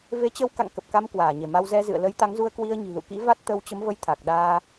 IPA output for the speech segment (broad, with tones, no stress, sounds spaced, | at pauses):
v e˨˦ t͡ɕ ə˧ w k a̰˧˨ ŋ k ə˨˩ p̚ k a˧ m k w aː˧˩ ɲ e˧˩ m a˧ w z ɛ˧ z ɨ̰˧˨ ə̯ l ə˨˦ j t̪ a˨˦ ŋ z u˧ ə̯ k w i˧ ə̯ ɲ i̤˨˩ l ṵ˧˨ k ḭ˧˥ v a˦˥ t̚ t̪ ə˧ w t͡ɕ ə˨˦ m v ə˧ j t̪ʰ a˨˩ k̚ ɗ aː˧